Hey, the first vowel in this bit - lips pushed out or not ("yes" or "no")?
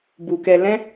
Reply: yes